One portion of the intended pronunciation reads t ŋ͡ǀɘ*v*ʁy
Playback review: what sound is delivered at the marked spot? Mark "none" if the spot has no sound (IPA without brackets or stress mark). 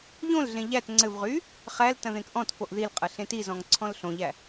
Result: v